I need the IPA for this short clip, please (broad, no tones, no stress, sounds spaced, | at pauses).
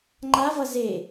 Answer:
ŋ͡ǃ a v ʌ z e